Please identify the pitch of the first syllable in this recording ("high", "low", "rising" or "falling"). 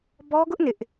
high